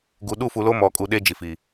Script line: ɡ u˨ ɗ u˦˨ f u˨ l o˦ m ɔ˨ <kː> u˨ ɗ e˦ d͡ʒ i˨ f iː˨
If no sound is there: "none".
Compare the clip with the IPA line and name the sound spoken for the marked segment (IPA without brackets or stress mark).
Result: kʼ